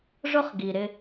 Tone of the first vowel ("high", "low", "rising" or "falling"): high